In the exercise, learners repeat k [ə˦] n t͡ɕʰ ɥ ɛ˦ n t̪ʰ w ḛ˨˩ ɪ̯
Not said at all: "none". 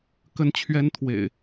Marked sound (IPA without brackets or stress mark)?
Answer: ə˦